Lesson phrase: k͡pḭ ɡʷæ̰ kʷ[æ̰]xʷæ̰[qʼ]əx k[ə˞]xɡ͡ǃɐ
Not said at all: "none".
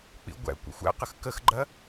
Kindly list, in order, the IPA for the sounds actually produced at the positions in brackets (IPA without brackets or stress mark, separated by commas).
ə̰, q, ə